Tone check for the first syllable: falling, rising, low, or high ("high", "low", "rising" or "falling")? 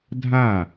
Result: falling